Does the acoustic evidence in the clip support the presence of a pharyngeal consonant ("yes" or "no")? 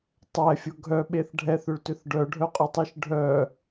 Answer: no